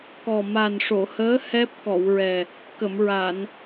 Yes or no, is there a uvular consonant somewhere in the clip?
no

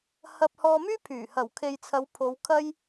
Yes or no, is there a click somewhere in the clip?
no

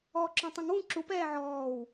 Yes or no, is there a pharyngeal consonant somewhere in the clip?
yes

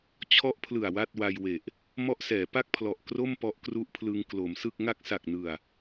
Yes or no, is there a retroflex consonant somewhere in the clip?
no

